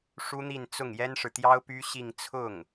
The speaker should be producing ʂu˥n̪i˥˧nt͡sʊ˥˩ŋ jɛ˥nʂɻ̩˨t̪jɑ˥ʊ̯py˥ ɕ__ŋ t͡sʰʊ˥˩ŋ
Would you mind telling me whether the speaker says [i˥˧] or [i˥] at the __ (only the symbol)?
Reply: i˥˧